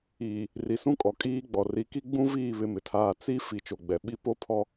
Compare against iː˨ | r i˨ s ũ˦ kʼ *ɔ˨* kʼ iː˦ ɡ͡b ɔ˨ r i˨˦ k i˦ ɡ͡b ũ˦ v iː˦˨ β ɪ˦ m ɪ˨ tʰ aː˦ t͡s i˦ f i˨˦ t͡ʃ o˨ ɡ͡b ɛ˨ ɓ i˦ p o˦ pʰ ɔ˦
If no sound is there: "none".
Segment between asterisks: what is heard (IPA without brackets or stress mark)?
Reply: ɔ˨